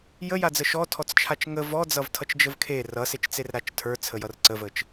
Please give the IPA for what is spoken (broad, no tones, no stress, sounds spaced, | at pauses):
j ə j a d͡z ə ʃ ɔ tʰ ɔ t͡s t͡ʃʰ a t͡ʃ ŋ ə v ɔ d͡z ʌ v tʰ ʌ t͡ʃ d͡ʒ ə v kʰ e r ʌ s e t͡ʃ t͡s e r ɾ a t͡ʃ tʰ ə˞ t͡sʰ ə j ʌ r ǀ ə v ə t͡ʃ